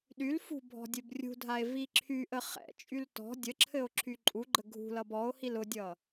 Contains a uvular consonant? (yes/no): yes